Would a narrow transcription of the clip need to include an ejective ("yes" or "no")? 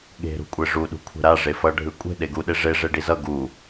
yes